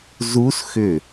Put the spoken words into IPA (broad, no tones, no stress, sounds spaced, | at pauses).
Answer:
z u s x ʏ